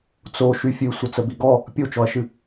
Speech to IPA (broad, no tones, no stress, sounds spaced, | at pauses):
t͡s o ʃ y fʲ ɨ sʷ ə t͡s ə b i ɡ ɔ | pʲ o t͡ʃ ɔ ɐ̯ ʃ ɨ